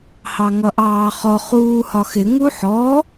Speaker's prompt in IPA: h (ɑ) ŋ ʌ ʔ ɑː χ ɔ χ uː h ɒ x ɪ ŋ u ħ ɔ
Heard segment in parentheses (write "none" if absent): ɑ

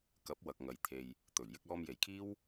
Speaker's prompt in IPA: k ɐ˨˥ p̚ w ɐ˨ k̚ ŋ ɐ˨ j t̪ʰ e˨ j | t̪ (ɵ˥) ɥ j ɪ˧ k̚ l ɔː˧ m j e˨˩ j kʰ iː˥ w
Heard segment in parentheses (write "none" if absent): ɵ˨˩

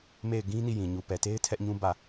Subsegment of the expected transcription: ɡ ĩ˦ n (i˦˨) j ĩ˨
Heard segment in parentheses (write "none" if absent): i˦˨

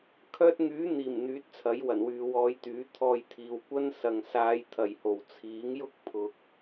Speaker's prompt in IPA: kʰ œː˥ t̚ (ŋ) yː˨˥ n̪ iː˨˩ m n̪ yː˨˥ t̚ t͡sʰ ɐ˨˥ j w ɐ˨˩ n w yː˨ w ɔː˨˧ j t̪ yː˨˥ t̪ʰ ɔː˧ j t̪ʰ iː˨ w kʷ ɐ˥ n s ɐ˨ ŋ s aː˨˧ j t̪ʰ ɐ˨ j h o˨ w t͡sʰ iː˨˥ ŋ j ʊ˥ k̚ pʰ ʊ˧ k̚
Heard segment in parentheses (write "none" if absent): ŋ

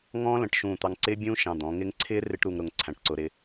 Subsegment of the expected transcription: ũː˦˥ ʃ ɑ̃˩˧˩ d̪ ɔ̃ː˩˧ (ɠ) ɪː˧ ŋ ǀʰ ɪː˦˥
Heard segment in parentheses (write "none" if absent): ŋ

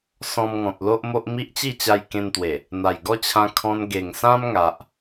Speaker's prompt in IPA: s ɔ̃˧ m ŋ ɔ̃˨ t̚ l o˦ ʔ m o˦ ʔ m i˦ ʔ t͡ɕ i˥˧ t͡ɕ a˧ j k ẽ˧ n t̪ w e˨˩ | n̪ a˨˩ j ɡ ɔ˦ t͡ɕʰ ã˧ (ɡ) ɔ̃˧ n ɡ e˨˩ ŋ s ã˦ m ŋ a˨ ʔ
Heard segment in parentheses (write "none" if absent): kʰ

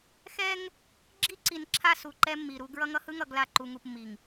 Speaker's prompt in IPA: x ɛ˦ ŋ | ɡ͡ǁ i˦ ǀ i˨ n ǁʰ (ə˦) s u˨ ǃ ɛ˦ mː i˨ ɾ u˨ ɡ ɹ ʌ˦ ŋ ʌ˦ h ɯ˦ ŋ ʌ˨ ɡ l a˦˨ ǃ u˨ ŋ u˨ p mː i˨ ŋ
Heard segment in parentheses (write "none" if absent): a˦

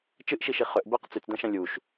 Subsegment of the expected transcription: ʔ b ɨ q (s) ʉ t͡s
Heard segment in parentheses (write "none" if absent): t͡s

